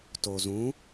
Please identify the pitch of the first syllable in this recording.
low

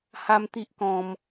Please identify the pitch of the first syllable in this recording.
high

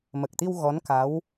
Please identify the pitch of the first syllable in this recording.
low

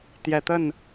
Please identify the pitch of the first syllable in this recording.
low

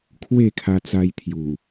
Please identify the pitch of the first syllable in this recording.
falling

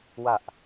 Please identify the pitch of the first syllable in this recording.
low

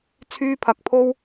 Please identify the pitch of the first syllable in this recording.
high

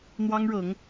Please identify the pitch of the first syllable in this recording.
high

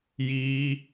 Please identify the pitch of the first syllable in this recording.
high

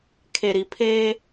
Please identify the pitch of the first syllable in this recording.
low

